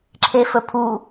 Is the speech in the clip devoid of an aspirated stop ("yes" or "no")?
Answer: no